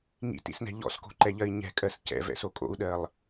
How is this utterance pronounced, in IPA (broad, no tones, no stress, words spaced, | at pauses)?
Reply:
ŋḭtḭsnɛ̤ ʎɔ̰sko̤ǃɛʎɜi̯ ɲɛ̤kʼɜs cɛ̰vɛ̰so kʼo̰u̯ɗɜlˠ